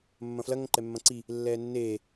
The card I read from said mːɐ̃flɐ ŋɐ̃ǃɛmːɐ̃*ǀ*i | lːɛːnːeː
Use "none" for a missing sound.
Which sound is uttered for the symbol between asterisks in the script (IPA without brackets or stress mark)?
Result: ǀ